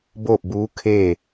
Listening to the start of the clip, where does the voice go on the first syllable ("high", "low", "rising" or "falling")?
falling